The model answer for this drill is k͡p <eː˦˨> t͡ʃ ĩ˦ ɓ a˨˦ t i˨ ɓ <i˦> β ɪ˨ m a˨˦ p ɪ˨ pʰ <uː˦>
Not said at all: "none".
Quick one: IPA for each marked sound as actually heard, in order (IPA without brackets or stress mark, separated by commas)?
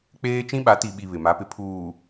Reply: eː˦, i˨, uː˨